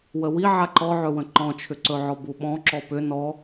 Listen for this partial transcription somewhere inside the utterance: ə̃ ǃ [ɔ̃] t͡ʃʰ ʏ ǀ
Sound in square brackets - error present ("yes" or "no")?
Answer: no